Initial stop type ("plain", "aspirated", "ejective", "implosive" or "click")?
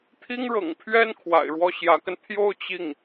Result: aspirated